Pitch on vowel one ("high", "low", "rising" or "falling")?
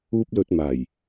high